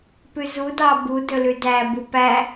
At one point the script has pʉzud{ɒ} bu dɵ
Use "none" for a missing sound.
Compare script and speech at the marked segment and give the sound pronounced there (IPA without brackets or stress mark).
ɑ